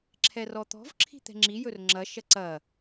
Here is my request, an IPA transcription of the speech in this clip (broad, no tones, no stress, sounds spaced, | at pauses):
ǁʰ ɛ r ɔ t̪ ɔ̤ v ǁʰ i̤ t̪ ɛ̤ ŋ͡ǁ i j ɵ r ŋ͡ǁ ɐ ʃ ɐ ǀ ɐ